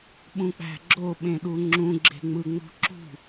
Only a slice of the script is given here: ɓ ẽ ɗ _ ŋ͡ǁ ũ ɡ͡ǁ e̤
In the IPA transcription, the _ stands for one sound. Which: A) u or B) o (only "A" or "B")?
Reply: A